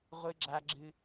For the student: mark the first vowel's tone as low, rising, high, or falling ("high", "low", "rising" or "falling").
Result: high